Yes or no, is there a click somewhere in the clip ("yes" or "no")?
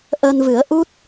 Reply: no